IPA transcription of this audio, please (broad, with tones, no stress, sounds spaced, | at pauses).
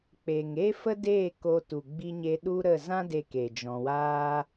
k͡p e˨ ŋ e˦ f ə˦ d e˦˨ k o˧ t u˨ ɡ͡b i˧ ɲ e˧ ɗ u˦ ɾ ə˦˨ z ã˦ d e˧ k e˨ d͡ʒ ɔ̃˧ w aː˦